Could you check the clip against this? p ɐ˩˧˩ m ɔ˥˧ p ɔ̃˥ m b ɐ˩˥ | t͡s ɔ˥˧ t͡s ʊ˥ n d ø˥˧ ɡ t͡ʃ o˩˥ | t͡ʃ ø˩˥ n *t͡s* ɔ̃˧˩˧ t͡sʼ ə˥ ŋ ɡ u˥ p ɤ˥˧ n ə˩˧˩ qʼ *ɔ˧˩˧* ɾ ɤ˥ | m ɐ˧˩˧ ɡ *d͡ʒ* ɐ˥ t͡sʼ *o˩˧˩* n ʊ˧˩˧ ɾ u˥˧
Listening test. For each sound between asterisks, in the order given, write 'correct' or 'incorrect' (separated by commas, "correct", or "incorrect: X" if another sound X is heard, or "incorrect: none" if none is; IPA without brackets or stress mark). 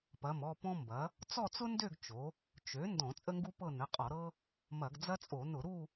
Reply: incorrect: d, correct, incorrect: d͡z, incorrect: o˧˩˧